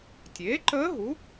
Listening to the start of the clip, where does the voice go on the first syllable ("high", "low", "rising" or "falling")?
rising